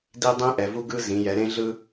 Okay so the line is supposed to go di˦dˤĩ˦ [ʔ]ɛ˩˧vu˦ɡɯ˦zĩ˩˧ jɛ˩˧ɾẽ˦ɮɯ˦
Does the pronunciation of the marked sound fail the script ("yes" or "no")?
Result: no